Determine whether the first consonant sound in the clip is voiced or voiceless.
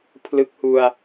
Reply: voiceless